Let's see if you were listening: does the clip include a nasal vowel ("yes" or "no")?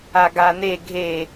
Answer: no